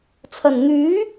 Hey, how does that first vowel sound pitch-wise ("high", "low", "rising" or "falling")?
low